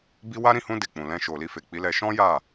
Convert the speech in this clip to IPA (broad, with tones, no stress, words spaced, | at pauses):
bi˦ wa˦ ɾĩ˦˨hũ˧ de˨k͡pũ˨lɛ̃˧ʃo˨ li˧fe˨k͡pi˨˦lɛ˧ ʃɔ̃˦ja˦˨